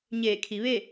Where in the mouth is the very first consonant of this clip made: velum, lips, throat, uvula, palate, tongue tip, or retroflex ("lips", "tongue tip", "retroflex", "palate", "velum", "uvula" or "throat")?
palate